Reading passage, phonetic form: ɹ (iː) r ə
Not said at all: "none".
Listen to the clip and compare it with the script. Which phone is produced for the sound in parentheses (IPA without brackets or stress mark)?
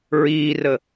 iː